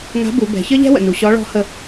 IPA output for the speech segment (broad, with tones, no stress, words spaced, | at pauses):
ŋa̤˧˥bu˩˧bɛ̤˩˧ çə˥ʎɛ̤˥wə̰˩nu˩ ɕɔ˧˥ɭɔ̤˧˥hə˧